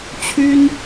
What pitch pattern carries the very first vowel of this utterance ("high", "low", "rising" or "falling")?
high